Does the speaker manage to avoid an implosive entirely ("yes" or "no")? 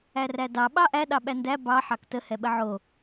no